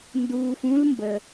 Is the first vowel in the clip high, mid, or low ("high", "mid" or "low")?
high